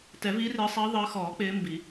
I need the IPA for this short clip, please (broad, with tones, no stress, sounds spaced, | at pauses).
t ɛ˨˩˦ v iː˨˦ r ɪː˨˦ sˤ iː˨˦ ðˤ ɪ˨˦ ə̯ x ɔː˨˩˦ k͡p ɪː˨˦ m b i˨˩˦